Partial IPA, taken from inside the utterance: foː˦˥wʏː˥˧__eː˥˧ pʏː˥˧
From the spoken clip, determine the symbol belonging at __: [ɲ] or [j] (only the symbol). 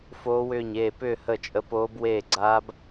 ɲ